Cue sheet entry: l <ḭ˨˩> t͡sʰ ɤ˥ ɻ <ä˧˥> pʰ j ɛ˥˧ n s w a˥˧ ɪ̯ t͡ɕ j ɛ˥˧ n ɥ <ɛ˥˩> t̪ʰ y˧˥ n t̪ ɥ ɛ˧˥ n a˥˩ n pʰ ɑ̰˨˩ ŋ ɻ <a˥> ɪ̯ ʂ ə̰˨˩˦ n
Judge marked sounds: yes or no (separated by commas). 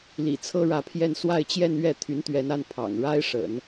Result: yes, yes, yes, yes